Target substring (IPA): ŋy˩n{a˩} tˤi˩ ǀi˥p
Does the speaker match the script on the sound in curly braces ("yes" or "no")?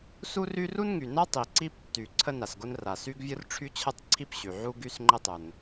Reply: no